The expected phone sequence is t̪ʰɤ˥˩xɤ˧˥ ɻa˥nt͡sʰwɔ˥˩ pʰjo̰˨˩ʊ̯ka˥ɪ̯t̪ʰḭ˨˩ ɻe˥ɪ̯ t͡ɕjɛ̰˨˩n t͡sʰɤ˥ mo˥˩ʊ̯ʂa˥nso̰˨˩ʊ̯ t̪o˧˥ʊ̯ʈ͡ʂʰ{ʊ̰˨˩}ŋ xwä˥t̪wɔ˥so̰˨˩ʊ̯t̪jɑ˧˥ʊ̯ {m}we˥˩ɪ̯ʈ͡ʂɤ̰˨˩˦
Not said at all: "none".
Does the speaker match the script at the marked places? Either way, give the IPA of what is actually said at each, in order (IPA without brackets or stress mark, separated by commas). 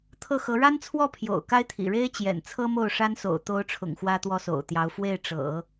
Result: ʊ̰˨˩, f